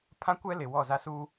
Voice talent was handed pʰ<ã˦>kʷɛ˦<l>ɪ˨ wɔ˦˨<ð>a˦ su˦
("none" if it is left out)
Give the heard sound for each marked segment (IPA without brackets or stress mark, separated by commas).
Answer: ã˦, l, z